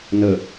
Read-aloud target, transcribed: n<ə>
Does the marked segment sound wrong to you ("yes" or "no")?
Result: no